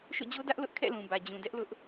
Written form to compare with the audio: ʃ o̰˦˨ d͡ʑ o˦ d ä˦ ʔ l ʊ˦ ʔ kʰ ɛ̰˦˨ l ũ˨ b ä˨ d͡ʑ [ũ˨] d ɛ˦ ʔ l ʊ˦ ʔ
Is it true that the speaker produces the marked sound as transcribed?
yes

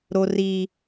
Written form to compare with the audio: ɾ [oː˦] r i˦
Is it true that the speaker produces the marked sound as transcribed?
no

